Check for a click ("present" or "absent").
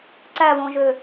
present